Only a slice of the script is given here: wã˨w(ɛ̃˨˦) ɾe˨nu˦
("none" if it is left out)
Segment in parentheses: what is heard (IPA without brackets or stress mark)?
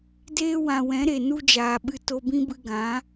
ɛ̃˨˦